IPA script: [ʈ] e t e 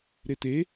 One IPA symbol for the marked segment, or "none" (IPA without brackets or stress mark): ɾ